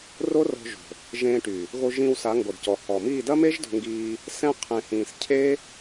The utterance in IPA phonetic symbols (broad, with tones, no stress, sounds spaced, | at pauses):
r o˦ r ɔ̤˧ ʒ o̤˨ | ʒ ẽː˧ ʈ y˨ | ɣ o˧ ʒ ĩː˧ w s a˨˦ ŋ ɡ o˨ d c ɔ˨ h ɔ˨ m iː˦˨ d ɐ˦ m e˦ ʒ d o̤˧ ŋ ɡ iː˧ | s ɛ̃˦ qʰ ẽ˧ h ĩː˧ s cʰ e˦